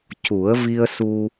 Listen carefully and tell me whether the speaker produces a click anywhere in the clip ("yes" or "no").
no